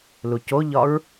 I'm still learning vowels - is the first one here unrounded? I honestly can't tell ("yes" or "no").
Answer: no